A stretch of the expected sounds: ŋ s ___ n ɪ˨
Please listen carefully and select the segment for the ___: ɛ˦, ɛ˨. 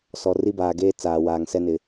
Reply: ɛ˦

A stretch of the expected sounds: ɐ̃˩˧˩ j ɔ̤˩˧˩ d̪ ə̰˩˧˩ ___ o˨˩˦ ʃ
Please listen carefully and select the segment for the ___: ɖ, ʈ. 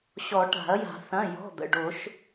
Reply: ɖ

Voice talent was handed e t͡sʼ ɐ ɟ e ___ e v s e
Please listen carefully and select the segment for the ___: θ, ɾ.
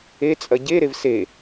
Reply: ɾ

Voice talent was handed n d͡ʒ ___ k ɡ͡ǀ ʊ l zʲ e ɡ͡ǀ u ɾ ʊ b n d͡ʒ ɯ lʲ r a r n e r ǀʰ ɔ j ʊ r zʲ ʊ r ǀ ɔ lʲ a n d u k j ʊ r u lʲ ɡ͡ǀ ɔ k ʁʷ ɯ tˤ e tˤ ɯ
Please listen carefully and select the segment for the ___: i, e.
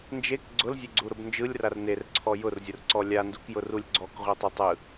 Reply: e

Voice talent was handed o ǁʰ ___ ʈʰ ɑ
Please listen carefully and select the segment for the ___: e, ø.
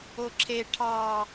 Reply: e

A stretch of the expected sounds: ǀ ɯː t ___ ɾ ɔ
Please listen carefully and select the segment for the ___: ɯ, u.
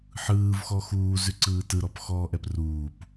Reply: ɯ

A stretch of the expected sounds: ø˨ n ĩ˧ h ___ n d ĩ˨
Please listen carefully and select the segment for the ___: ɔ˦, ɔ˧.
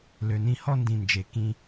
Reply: ɔ˦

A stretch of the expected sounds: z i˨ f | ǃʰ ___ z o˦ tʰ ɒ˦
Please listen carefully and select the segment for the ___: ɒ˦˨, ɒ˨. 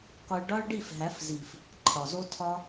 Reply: ɒ˨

